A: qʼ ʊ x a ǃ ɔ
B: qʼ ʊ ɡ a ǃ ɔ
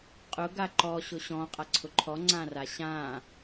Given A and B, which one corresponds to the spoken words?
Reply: B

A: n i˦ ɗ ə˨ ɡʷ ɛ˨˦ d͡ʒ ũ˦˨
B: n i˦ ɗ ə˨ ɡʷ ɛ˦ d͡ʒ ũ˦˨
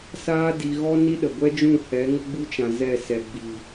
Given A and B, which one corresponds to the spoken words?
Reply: B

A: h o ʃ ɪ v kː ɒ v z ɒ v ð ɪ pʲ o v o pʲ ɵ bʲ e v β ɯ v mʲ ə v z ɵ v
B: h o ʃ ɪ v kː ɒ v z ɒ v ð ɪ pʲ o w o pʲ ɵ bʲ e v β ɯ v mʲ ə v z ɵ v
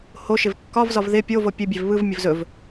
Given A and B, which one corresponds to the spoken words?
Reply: A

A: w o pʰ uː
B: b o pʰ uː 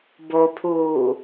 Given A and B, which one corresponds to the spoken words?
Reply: B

